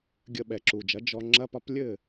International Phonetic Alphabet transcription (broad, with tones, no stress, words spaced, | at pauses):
ɡʲə˧ ɓɛ˩ǁu˩d͡ʒɐ˩˥ d͡ʒɔ˧ ŋ͡ǁɐ˥pɒ˥p lʲɘ˥˩